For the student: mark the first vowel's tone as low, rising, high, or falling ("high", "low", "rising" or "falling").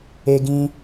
high